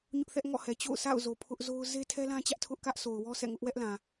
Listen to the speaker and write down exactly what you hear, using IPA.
ɲ ʊ˦ ʔ θ ɛ˦ ʔ ŋ ɔ̰˦˨ h ɛ˨ t͡ɕ o̰˦˨ ʊ̯ s a̰˦˨ ʊ̯ z o˨ pʰ ʊ˦ ʔ z o˦ ʊ̯ z e˦ tʰ ɛ˦ l ã˦ t͡ɕ ä˦ ʔ tʰ ʊ˦ ʔ k ä˦ ʔ s o˨ ʊ̯ w ɔ˦ s ɛ̰˦˨ ŋ ʊ˦ ʔ w ɛ˦ ʔ l ã˨

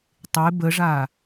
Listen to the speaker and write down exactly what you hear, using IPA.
tˤ e b ə ʐ aː

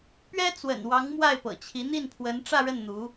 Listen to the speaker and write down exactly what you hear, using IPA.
p ɥ ɛ˥ t͡s w ə̰˨˩ n w ɑ˧˥ ŋ m w a˥˩ ɪ̯ p ɤ̰˨˩ t͡ɕʰ i˧˥ n̪ i˥˩ n pʰ w ə˧˥ n ʈ͡ʂ ä˥˧ ɻ ə˥˩ n n̪ u˧˥

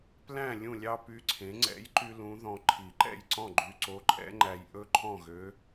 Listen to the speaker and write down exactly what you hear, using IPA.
p l æ̃˥˨ lʲ ũ˥˨ lʲ ɑ˥ p y˧˥ ǀʰ ẽ˩˥ ŋ͡ǀ ɛ̰˩˥ j ǃ y˧ l ũ˧˥ ð ɔ̃˧ ǃʰ i˨˩˦ ǃ ɛ̰˥˨ j ǀ ɔ̃˥˨ ɡ͡ǃ y˧ ǀ o˧˥ ǃʼ ɛ̰˧˥ ŋ͡ǃ æ˧ j ʔ ɵ˥ ǃʰ ɔ̃˥˨ ɣ ø˧˥

